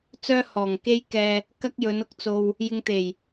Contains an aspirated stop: no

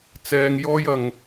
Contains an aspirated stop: no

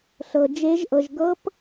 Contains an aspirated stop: no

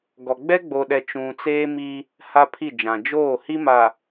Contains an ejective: no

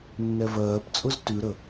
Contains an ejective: yes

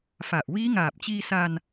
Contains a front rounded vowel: no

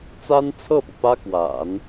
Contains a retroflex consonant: no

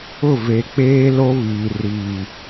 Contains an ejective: no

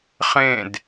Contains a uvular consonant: yes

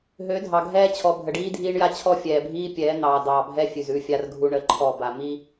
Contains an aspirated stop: yes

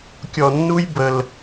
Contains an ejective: no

